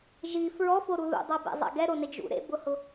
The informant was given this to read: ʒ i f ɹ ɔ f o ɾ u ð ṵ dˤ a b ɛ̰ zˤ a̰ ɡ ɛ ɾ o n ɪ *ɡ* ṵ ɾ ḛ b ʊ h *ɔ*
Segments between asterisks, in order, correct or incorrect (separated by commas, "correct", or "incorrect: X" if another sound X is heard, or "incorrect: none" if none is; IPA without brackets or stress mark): incorrect: d͡ʒ, incorrect: ʊ